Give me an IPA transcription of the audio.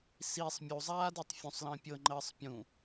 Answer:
s i sˤ mʲ u zˤ aː d i tˤ fʲ ũ sˤ l ə̃ː pʲ ɤ ŋ͡ǃ əː sˤ pʲ ũ

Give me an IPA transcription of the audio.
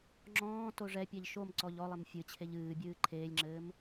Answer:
ŋ͡ǁ ɔ̃ː t o ʐ ɛ pʲ ɛ ʎ ʃ o m ǀ ɔ ʎ ɔ lˠ e m fʲ ɨ t͡ɕʰ e ʎ ɨː bʲ ɨː ǃʰ eː lʲ ŋ͡ǁ ɘː m

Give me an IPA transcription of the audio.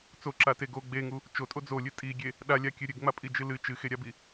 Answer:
t͡s o ǁ a t e ɡ o ɡ͡b e ŋ u | t͡ʃ o tʼ o d͡z o lʲ ɨ tʼ i ɡʲ e | ɗ a lʲ a kʲ ɨ ɾʲ ɨ ɡ ŋ͡m a pʼ i d͡ʒ ɨ l ɨ t͡ʃ ɨ x e ɾʲ a b i

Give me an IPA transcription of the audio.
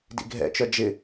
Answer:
d ḭ ɡʱ ɛ̰ t͡ʃ œ d͡ʒ ɪ

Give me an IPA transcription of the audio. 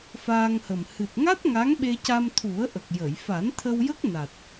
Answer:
f aː˧ ŋ h ə˨˩ m h ɨ˨˩ t̚ ŋ a˦˥ t̚ ŋ a˧˥ ŋ ɓ e˧ c a˧ m t̪ʰ u˨˩˦ ə̯ ʔ ə˨˩ k̚ j ə˨˩˨ j f a˨˩˦ n t̪ʰ ə˧ w j ə˦˥ k̚ n a˨˩ t̚

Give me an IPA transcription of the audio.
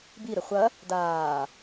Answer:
b i ɾ ɘ χʷ ɐ | d aː

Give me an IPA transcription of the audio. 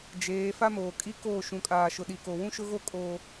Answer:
d͡ʒ eː˨˦ f a˦ m oː˨ kʼ i˦ k oː˦˨ ʃ ũ˨ kʼ aː˨ ʃ ʊ˨ ɗ i˨ k o˨ w ũ˦ ʃ ʊ˦ ɣ o˦ kʼ o˦

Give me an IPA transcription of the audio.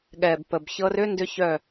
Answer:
ɠ ɛ˨ b p ə˨ b ç ɤ˧ r ʏ˦ n d ʏ˦ ç œ˦˨

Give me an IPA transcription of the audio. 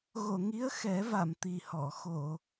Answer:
ɣ o˨˩˨ ŋ i˧˥ ə̯ x ɛ˨˩˦ v a˨˩˨ m t̪ i˨˩ h ɔ˨˩˨ x o˨˩˨

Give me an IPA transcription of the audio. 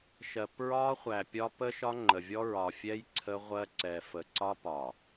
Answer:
ʃ ɜ˨ p ɹ ɒ˦ χʷ æ˨ pʲ ɒ˦ p ə˦ ʃ ɒ˦ ŋ͡ǃ ə˨ vʲ ɔ˦ ɹ ɒ˨ fʲ ɛ˦ j ǀʰ ə˦ ʁʷ ɜ˦ ǀ ɛ˨ f ə˨ ǀ ɒ˦ p ɒ˨

